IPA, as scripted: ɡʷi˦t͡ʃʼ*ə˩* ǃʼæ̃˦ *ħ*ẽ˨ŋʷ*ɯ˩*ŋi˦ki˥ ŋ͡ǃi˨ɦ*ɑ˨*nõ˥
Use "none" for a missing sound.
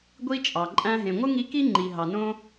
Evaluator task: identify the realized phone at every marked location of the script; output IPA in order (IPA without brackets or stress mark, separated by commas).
ɑ˩, ɦ, ɯ˥, ɑ˨